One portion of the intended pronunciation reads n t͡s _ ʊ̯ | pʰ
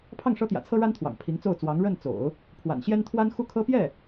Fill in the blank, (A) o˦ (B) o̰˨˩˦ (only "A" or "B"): B